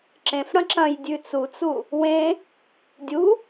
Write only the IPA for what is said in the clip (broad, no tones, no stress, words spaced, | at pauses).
ǁẽf ɽɐ̃ǁɐ̃jdʲʉ t͡sut͡su | wẽ | dʲu